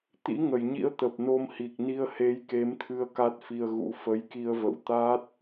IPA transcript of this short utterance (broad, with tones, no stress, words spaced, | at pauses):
t̪ḭ˧˥ŋə˧˩jɲḭ˧˥ə̯ t̪ə˨˩p̚no˧mhi˨˩k̚ ni˧ə̯he˨˦jke˨˦mt̪ʰɨ˧ə̯ ka˦˥t̚fi˧ə̯ɣṵ˧˥ fə˨˦jki˧ə̯və̰˧˨w t̪a˦˥t̚